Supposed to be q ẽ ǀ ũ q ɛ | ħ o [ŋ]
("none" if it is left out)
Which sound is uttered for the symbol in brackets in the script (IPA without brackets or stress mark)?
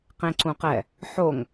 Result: ŋ